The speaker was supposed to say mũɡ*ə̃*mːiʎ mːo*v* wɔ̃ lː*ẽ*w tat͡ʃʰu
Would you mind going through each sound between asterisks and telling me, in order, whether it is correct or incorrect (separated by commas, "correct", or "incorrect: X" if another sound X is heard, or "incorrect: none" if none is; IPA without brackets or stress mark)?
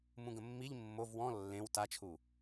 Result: correct, correct, correct